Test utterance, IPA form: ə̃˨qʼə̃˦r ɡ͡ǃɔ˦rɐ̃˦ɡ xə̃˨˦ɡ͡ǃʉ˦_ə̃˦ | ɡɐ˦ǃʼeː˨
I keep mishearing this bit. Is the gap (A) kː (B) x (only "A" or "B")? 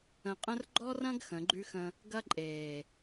B